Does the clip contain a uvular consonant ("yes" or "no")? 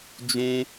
no